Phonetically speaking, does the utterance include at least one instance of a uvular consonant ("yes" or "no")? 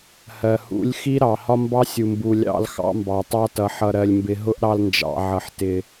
no